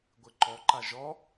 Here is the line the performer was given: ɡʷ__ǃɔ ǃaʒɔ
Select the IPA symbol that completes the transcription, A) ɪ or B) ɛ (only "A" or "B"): A